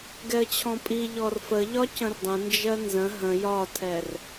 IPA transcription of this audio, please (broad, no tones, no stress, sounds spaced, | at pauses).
ɡ ɛ ə̯ t͡ɕʰ ɔ̃ pʼ i ʎ ɔ r f ə ʎ ɒ c ə̃ r dˤ ə̃ n d͡ʒ ɜ n z ə̃ ɦ ə̃ j ɒ tʰ ɛ r